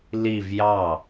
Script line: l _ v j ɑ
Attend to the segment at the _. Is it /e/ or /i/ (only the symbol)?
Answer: i